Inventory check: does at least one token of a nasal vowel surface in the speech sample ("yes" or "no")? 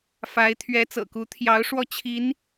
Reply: no